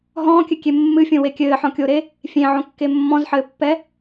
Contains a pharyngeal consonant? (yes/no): yes